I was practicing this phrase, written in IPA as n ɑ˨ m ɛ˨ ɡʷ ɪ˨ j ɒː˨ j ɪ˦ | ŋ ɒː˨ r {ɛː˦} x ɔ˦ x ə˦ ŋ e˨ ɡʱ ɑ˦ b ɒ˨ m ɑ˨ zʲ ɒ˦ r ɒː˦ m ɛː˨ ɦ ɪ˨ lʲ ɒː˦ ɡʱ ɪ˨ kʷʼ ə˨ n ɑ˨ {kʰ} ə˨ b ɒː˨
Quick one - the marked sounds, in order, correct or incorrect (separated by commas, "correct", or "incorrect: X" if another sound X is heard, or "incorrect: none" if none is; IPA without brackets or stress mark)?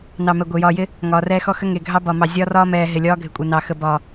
correct, incorrect: x